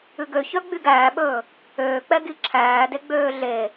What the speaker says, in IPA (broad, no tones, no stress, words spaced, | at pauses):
ʉɡø çœɡ͡byɡæːɓɵː | øːk͡pɛɡi ǁʰæːdeɡ͡bøː ɮe